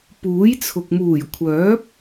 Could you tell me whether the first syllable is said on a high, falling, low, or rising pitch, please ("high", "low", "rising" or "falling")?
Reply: rising